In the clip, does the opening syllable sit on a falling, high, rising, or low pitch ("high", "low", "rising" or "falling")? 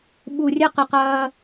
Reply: low